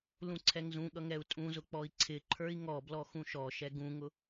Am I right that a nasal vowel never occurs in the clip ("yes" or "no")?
no